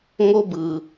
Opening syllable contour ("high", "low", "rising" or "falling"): high